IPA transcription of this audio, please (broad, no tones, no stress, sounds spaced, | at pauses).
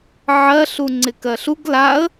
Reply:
ʕ ɜ ɬ u ŋ͡ǀ ɪ k ɜ ɬ u ɡ l a ə̯